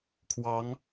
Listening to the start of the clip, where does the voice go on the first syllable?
rising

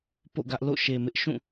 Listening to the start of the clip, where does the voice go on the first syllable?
falling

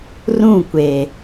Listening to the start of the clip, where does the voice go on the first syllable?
falling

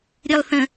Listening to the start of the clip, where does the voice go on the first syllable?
low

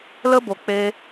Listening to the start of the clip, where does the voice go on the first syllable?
high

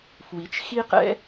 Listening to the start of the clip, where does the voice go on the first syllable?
rising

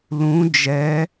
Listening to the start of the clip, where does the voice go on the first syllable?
rising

